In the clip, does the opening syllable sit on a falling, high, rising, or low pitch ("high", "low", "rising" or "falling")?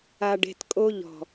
low